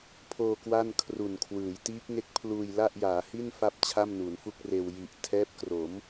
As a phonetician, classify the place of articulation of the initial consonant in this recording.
labial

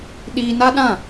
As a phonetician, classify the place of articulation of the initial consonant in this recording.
alveolar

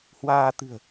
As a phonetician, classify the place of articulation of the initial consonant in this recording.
glottal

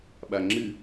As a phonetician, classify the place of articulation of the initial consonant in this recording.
labial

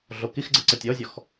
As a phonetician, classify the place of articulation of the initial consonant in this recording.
alveolar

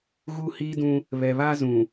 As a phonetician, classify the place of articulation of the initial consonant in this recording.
velar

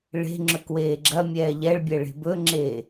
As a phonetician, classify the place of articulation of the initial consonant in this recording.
retroflex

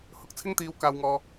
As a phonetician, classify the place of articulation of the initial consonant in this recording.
glottal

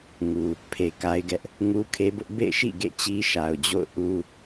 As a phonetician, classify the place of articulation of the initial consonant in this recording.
velar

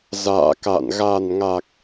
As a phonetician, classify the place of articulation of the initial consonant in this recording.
alveolar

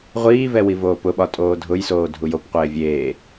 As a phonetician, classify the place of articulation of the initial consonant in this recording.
uvular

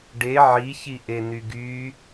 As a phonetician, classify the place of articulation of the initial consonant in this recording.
retroflex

